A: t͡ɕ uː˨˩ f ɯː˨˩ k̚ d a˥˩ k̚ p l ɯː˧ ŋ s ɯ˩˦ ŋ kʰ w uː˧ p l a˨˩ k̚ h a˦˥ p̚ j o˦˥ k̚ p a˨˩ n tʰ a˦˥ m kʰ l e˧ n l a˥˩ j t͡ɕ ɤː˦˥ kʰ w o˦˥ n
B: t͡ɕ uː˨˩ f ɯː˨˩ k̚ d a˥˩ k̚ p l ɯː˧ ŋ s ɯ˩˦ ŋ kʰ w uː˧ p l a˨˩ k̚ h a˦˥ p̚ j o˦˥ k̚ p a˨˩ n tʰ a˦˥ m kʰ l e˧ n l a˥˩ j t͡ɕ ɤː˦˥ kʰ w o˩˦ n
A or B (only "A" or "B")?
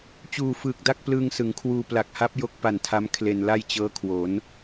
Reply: B